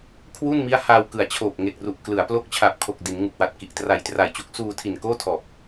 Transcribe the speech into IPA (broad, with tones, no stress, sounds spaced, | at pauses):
kʰ w u˥˩ n m i˦˥ a̯ h a˧ w k ɯ˨˩ a̯ t͡ɕʰ oː˨˩ p̚ ŋ e˨˩ k̚ r u˨˩ ʔ k l ɯ˩˦ a̯ p l o˦˥ k̚ t͡ɕʰ a˨˩ p̚ kʰ o˨˩ k̚ d i˩˦ n ŋ u˨˩ k̚ w a˨˩ t̚ k i˨˩ ʔ t r a˨˩ j t r a˨˩ j t͡ɕ u˦˥ k̚ s uː˧ tʰ i˨˩ n k oː˥˩ tʰ ɔː˨˩ p̚